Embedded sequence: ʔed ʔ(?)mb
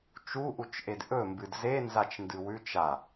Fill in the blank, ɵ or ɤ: ɵ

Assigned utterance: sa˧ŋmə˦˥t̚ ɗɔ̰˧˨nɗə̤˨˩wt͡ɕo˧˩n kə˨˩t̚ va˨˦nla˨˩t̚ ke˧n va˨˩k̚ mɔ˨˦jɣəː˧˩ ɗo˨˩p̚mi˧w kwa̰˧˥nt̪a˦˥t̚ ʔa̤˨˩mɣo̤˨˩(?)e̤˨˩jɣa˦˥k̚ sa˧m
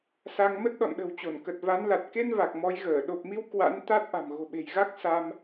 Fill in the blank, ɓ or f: ɓ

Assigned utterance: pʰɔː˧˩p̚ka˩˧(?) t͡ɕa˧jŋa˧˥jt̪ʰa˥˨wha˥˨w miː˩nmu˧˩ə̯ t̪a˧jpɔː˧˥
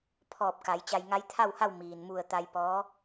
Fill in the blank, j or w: j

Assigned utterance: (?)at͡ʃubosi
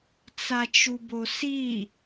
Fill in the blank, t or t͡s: t͡s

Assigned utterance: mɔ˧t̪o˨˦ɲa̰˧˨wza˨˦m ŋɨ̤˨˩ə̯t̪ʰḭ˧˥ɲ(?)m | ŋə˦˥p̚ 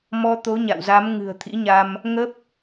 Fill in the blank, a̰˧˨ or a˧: a˧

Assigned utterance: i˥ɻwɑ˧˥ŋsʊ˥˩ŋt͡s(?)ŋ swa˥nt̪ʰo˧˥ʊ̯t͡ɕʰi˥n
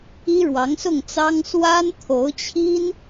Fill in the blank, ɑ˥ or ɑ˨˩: ɑ˥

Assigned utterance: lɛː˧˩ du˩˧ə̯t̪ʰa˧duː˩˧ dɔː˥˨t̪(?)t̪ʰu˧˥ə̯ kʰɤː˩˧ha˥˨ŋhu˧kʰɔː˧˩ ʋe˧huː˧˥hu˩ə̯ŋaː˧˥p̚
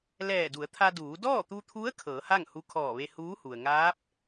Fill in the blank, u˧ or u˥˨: u˧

